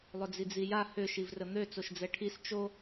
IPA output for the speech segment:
lˠ ʏ d͡z i d͡z i j a h ʏ ʃ i v r ə n̪ ø t͡s o ʃ d͡z ɛ ʈʰ i s t͡ʃ o

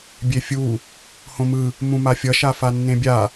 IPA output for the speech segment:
bʲ e fʲ u | h õ m ɯ | m ũ m a fʲ ʌ ʃ a f a nː ẽ bʲ a

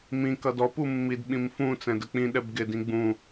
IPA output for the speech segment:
m ĩ k ʌ d ɔ p u mː i d ɓ ĩ m f ũ t͡s ɛ̃ d ə k͡p ĩ ɗ ɛ b ɡ ɪ d ĩ ɡ͡b ũ

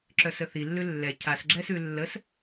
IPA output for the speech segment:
ǁ œ s ə θ i lː ʉ lː ɛ cʰ a s ɡ͡ǁ ɛ s ʉ lː ə s

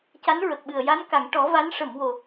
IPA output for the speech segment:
c a˧˥ n ɹ ə˨˩ k̚ ɓ ɨ˨˩ ə̯ j a˧˥ n k a˨˩˨ ŋ ʈ ɔ˨˩˦ v a˧˥ n ʂ ə˨˩˨ m w o˨˩˨

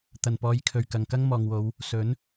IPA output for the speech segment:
t̪ ɐ˨˩ n p ɔː˨˧ j kʰ ɵ˨˩ ɥ k ɐ˨ ŋ k ɐ˥ ŋ m ɔː˨ ŋ w o˨˧ w | s ɵ˨˥ n

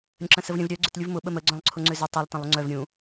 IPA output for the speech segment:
ɾʲ ə̃ ǁ ə̃ s ə v ɾʲ ə̃ v ɾʲ œ ɡ͡ǀ ʏ t lʲ u v m ʊ ɓ ə m ə ɡ͡ǀ œ̃ lˠ ǀʰ ʊ ŋ͡ǀ ʏ z ʏ tˤ i lˠ t ə̃ lˠ ʊ ŋ͡ǀ œ v ɾʲ ũ

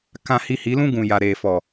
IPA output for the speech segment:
k ã˧ h i˧ h i˨˦ l ũ˦ ɡ ũ˨ j a˨ ɾ eː˨ f ɔ˨

